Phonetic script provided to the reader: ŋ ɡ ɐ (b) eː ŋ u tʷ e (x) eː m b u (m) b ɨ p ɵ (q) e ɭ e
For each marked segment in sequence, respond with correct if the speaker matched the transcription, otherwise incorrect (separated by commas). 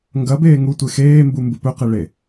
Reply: correct, correct, correct, correct